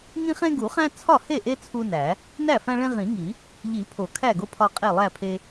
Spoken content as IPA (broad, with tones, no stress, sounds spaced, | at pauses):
ŋ ĩ˦ χ ẽ˦ ɡ u˨˩˦ χ æ̃˦ t͡sʰ ɒ˥˩ h e˥˩ ʔ e˦ t͡sʰ u˦ n æ˨˩˦ | n æ˥˩ f æ̃˦ ɭ ẽ˦ ʁ ĩ˨˩˦ ŋ i˨˩˦ | ʎ i˨˩˦ pʰ o˨˩˦ kʰ æ˥˩ ɡ o˦ pʰ ɒ˦ qʼ e˥˩ lˠ æ˥˩ pʰ e˦